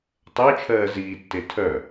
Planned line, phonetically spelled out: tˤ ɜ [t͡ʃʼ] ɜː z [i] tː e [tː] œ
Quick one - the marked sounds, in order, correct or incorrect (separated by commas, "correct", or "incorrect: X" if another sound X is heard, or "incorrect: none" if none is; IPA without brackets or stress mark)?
incorrect: t͡ʃʰ, incorrect: iː, incorrect: tʰ